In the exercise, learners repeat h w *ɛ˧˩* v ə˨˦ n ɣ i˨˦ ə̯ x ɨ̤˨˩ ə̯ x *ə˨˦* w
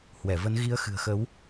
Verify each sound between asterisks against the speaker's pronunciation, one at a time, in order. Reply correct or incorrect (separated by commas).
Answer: correct, correct